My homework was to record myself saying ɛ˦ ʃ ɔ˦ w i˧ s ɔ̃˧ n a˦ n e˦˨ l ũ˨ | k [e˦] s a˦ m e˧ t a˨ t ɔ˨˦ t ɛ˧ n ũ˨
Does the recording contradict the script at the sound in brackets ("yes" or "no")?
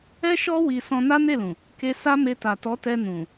no